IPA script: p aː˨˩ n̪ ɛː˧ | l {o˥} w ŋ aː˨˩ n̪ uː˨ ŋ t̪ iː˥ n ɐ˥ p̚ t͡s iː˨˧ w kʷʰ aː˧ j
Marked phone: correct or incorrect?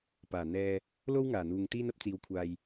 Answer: correct